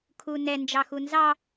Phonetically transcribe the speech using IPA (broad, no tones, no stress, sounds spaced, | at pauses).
kʰ u n ɛ n d͡ʒ ɑ x u n z ɑ